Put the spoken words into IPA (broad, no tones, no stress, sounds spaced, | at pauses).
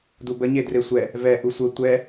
d u b ə ɲ e d r e sʷ ɛ | v ɛ ʔ u sʷ ə tʷ ɛ